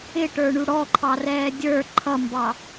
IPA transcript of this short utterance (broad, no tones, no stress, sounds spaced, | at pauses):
ɪ ʈ ə˞ ɳ u ɽ ɔ ǃʰ ɑ r ɛː dʲ ə˞ ǃʰ ʌ m b ɑ